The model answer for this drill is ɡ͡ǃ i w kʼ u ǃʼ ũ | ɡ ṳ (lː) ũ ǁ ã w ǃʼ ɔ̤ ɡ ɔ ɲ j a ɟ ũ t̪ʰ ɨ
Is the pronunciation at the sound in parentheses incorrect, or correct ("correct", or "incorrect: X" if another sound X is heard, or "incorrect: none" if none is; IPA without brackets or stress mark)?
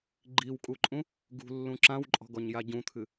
correct